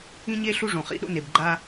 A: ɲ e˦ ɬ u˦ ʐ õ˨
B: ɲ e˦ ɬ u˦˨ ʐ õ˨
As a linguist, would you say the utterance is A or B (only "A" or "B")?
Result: A